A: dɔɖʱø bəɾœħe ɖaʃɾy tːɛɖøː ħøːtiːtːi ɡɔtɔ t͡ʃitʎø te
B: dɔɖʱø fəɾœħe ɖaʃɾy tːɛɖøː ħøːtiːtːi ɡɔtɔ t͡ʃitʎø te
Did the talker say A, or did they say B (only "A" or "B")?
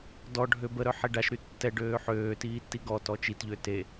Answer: A